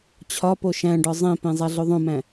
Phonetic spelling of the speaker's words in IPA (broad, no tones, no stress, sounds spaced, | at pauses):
t͡ɕʰ ɒ p o ʃ æ̃ ɖ ɒ zˤ ẽ p ẽ zˤ æ ɮ o ðˤ õ m æ̃